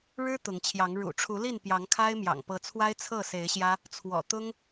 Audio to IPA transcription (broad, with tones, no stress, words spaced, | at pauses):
ɻɻ̩˦ t̪ʊ˨˦ŋt͡ɕʰjɑ˨˦ŋ ɻṵ˨˩ʈ͡ʂʰu˨˦li˥˨n pjɑ˨˦ŋkʰa˦ɪ̯mjɑ̰˨˩ŋ pɤ˨˦t͡sʰwa˦ɪ̯ t͡sʰɤ˥˨se˨˦ɪ̯ɕjä˦ | t͡sʰwɔ̰˨˩ t̪ʊ˦ŋ